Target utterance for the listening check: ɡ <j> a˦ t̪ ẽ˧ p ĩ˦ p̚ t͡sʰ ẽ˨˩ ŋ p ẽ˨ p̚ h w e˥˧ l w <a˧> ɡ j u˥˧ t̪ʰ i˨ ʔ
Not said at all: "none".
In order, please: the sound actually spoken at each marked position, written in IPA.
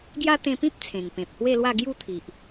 j, a˥˧

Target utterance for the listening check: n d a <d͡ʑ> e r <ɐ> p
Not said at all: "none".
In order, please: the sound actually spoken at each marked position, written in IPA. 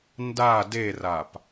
d, a

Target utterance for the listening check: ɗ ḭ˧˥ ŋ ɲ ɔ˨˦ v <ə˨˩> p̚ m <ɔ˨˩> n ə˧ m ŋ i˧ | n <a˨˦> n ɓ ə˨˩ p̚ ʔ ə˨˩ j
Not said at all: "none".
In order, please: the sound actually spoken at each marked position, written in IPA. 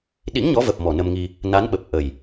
ə˨˩, ɔ˨˩, a˨˦

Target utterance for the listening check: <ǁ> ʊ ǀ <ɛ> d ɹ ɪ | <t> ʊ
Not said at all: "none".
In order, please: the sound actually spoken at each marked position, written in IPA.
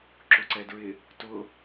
ǁ, ɛ, t

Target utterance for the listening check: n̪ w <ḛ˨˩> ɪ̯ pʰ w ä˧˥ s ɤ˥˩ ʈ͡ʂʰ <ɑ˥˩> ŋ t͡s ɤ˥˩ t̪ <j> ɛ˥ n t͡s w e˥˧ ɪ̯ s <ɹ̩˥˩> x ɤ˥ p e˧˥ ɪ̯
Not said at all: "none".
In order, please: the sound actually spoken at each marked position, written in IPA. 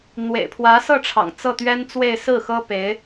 ḛ˨˩, ɑ̰˨˩, ɥ, ɹ̩˥˩

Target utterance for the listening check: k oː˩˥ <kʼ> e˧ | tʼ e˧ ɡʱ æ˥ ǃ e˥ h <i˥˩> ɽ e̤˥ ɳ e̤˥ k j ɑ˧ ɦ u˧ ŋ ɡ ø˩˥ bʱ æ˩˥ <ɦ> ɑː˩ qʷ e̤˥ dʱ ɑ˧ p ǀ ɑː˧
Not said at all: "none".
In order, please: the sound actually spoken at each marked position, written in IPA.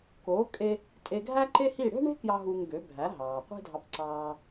kʼ, i˥˩, ɦ

